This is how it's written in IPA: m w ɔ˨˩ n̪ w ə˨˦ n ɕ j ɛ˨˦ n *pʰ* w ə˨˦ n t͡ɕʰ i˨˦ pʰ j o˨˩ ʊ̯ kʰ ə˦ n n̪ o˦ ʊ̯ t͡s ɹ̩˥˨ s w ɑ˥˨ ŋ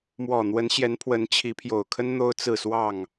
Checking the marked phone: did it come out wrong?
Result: no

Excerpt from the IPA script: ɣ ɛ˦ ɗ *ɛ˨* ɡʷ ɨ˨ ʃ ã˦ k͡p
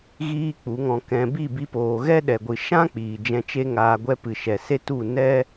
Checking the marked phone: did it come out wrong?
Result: no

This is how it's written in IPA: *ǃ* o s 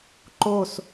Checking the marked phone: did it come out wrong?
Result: no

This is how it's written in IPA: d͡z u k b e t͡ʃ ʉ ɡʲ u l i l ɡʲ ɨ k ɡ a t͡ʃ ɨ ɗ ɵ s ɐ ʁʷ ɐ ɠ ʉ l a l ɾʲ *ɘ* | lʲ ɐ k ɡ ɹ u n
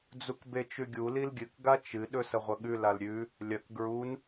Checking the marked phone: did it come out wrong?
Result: yes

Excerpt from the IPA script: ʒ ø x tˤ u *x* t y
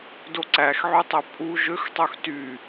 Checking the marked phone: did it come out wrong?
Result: no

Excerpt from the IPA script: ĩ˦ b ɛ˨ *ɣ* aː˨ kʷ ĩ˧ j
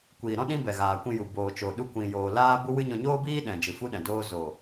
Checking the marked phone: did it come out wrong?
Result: no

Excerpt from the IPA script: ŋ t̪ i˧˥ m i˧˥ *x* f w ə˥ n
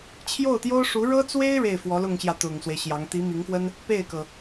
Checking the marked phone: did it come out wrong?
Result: yes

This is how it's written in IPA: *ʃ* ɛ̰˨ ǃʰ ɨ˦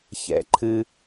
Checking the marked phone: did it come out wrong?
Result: yes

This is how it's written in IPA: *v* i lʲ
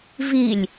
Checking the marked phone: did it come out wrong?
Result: no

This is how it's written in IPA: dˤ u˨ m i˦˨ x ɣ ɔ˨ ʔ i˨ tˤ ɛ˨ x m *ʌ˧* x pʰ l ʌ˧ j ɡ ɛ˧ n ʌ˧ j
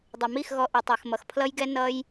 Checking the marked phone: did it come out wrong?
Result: yes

